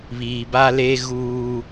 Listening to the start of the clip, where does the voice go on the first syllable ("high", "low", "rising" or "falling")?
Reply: low